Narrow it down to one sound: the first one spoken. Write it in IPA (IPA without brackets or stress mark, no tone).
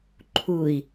ǃʰ